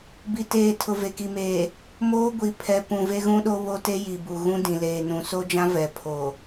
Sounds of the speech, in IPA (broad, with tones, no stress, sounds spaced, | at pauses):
b i˨ t eː˨ tʰ ʊ˨ v e˨ k i˨ m eː˨ | m oː˦ ɡʷ i˨ pʰ ɛ˨ p ũ˨ v e˦ ɣ ũ˦ ɗ o˦ β o˦ t e˦ j i˨ b u˨ ɣ ũ˦ d ĩ˨ l eː˨ n ũ˨ s o˦ d͡ʒ ã˦ v ɛ˨ pʰ o˨